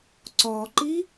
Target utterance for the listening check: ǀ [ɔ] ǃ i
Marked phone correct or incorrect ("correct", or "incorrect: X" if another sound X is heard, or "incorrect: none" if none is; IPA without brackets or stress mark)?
correct